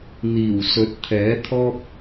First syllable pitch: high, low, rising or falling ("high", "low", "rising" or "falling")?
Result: low